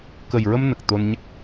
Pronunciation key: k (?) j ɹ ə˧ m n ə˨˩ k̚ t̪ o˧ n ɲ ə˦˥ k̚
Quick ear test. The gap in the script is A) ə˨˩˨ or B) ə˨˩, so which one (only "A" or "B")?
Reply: B